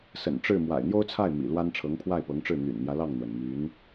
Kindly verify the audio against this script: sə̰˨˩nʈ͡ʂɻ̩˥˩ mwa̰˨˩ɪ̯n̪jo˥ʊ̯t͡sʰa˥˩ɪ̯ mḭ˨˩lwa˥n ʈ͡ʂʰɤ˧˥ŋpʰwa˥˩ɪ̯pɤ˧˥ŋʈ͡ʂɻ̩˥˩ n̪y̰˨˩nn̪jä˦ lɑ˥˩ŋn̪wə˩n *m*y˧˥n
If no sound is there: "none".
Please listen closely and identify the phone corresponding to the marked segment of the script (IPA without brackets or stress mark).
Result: m